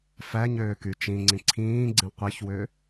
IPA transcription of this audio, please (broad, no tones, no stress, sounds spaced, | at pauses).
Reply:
f æ ɲ øː k y t͡ʃ ĩ ŋ͡ǀ ĩ ǀʰ ĩː ɡ͡ǀ ĩ qʷ i ç w ø